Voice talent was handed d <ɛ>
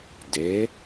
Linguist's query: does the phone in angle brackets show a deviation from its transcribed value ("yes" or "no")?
yes